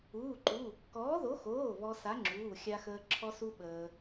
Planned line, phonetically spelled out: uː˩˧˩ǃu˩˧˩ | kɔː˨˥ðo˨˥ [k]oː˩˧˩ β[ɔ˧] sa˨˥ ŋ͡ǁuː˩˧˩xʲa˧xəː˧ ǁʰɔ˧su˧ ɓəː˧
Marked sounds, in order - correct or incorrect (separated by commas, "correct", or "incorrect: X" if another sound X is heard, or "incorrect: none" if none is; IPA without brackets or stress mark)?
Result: incorrect: x, correct